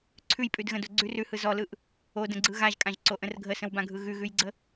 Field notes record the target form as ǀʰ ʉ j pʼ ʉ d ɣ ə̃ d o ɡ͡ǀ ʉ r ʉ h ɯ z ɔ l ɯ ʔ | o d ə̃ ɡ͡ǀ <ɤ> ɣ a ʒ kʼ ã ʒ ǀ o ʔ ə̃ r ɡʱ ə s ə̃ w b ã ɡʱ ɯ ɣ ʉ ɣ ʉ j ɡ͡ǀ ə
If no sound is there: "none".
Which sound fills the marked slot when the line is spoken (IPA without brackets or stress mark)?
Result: ɯ